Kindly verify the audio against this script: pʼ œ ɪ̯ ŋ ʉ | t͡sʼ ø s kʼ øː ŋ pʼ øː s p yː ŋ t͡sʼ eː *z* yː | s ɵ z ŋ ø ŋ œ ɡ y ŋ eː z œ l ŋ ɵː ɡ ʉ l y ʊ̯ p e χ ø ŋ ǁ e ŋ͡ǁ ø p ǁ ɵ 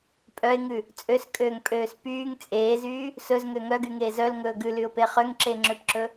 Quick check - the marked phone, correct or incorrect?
correct